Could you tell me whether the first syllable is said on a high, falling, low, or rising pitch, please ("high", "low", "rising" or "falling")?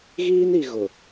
high